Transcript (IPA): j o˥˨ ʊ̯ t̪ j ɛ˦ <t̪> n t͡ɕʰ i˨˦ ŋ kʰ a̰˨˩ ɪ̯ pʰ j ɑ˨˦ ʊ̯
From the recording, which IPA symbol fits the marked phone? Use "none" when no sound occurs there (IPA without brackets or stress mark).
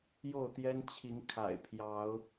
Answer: none